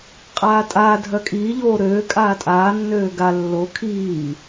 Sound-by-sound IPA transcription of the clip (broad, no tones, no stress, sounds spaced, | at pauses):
qʼ aː tʼ aː dʱ œ kʼ iː ʎ oː ɾ øː kʼ aː tʼ aː nː øː ɡ a lː o kʰ iː